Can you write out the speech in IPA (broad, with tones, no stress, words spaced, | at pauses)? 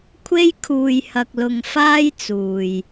kʷʰe˥jkʰuː˧jhɐ˧k̚lʊ˧ŋ faː˥jt͡suː˨j